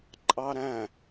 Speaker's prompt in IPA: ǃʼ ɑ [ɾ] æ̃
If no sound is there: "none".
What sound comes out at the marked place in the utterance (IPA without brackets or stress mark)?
ɾ